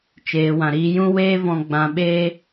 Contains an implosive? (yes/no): yes